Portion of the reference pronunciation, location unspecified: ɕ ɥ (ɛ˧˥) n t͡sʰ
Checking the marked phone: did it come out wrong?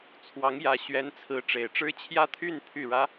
no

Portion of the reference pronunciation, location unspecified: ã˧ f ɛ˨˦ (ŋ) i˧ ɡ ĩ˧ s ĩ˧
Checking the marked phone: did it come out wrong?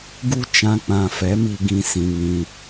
yes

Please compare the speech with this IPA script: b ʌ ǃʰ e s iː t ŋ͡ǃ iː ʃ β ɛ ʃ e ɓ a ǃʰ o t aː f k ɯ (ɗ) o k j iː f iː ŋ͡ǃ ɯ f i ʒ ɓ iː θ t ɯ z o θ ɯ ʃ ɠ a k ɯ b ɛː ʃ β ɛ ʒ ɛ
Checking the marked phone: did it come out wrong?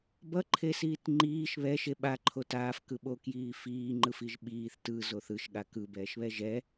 yes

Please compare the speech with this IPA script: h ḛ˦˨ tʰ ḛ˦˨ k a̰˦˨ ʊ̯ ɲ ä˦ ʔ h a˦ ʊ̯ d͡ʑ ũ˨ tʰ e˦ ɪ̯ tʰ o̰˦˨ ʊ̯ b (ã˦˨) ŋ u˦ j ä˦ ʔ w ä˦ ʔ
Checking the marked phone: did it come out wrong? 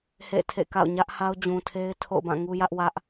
no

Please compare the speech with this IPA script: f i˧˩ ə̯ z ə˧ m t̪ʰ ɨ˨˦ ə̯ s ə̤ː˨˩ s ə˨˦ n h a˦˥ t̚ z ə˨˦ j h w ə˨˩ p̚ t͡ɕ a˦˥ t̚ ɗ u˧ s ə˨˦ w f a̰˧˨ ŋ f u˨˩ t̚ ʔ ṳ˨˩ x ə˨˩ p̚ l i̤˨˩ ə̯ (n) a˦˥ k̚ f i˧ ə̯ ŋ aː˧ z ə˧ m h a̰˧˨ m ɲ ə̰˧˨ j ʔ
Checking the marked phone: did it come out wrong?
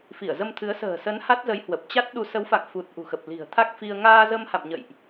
yes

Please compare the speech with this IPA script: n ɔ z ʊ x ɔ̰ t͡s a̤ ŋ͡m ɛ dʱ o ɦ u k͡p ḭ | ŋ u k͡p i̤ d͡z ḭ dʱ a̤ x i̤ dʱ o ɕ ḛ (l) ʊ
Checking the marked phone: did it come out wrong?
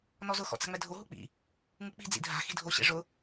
yes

